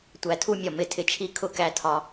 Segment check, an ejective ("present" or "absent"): absent